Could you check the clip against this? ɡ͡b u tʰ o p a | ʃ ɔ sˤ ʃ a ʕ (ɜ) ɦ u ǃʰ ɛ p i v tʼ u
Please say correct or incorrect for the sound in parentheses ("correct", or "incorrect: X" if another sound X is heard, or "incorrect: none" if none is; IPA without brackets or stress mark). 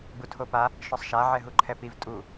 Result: incorrect: ɛ